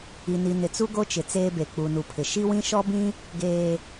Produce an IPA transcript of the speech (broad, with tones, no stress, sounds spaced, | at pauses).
i˨ n i˨ n ɪ˨ t͡s u˦ ɡ o˦ t͡ʃ ɪ˨ t͡s eː˦ b e˨ k͡p u˨ n u˨ pʰ ɪ˨ ʃ i˦ w ĩ˦ ʃ ɔ˦ b ĩ˦ | ɡ eː˨